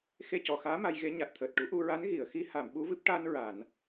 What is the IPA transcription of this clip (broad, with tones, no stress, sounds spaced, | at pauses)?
x e˧ c ɔ˨˩ x aː˧˥ m a˧ j ɣ e˧˥ ɲ a˨˩ t̚ t̪ʰ əː˨˩ t̚ ʈ u˨˩˦ ʔ u˧ ɹ a˧˥ n ɣ i˨˩˨ ə̯ x i˧˥ h a˨˩˨ m ɓ u˧˥ v ɨ˦˥ p̚ ʈ a˧ n ɹ a˨˩˨ n